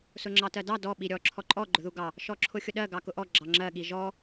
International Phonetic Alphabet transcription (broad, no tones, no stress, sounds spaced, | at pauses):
s ʊ ŋ͡ǁ ɑ t ɜ d ɑ d ɔ ɓ i ɾʲ ɔ ǁʰ ɔ ǃʼ ɔ ɡ͡ǃ ʊ ð u ɡ ɑ | ʃ ɔ ǁʰ ʊ xʲ ʊ ɗ ɜ ɡ ɑ k ʊ ʔ ɔ ɡ͡ǁ ɑ ŋ͡ǁ ɜ ɠ i ʒ ɔ